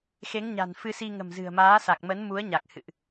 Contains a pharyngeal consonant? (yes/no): no